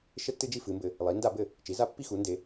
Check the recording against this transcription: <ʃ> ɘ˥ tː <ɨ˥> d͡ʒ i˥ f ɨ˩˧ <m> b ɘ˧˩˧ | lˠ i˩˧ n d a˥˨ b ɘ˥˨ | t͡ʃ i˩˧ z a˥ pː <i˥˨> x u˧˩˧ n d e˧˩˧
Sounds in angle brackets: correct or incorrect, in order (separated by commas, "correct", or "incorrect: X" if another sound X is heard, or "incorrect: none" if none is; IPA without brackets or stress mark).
correct, correct, correct, correct